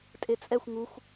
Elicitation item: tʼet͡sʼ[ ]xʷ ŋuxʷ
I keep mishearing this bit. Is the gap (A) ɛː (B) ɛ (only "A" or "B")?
B